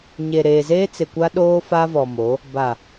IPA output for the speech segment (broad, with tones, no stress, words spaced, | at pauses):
ɲe˨ɾeː˨zeː˦ t͡sɪ˨kʷa˦ɗoː˦ fa˦vɔ˨mo˨˦ | ba˨